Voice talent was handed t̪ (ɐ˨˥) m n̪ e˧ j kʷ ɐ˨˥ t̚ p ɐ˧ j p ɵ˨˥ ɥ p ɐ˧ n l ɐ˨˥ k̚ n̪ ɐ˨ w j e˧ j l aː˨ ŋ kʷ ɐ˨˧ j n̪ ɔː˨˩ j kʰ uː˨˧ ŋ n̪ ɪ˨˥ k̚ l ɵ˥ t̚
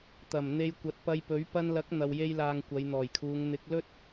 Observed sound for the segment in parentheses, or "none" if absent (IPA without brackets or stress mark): ɐ˨˩